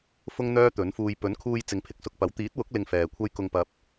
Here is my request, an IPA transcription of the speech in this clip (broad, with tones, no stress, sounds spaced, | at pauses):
f ʊ˥ ŋ n̪ œː˥ t̪ ɵ˨˥ n f uː˧ j p ɵ˨˥ n kʰ uː˧ j t͡s ɪ˨˧ ŋ pʰ ɪ˧ k̚ s ʊ˧ k̚ p ɐ˨˥ w t̪ iː˨˥ t̚ w ʊ˨˥ k̚ l ɪ˧ ŋ f ɛː˨ kʷʰ ɐ˥ j k ʊ˧ ŋ p ɐ˧ p̚